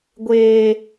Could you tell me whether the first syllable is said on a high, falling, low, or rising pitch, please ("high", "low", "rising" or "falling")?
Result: low